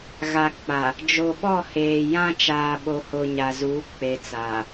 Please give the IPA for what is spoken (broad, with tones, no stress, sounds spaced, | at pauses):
ɣ a˨ k͡p a˨ | d͡ʒ o˨ ɓ ɔ˦˨ h eː˨ j ã˦ t͡ʃ aː˨ ɓ o˨ h o˨ ɲ a˨ z uː˨˦ k͡p e˨ t͡s aː˨